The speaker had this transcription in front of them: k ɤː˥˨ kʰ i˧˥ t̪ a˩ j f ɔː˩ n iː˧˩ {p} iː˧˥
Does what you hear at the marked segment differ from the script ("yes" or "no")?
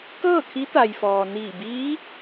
yes